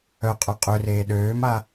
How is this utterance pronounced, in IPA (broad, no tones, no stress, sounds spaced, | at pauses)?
œ qʼ œ qʼ ø r eː ɗ øː m a